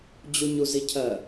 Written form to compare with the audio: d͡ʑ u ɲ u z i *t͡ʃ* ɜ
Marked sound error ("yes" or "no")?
yes